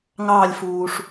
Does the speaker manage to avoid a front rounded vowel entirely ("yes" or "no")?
yes